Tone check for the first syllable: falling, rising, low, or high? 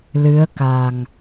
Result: rising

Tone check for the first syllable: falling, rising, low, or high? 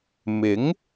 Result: rising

